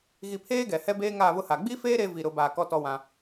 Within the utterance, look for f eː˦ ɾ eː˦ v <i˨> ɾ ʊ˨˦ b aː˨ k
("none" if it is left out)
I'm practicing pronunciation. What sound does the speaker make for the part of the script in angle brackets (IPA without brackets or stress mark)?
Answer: i˨